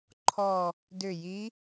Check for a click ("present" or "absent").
present